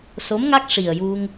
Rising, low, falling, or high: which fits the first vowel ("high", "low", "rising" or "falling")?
rising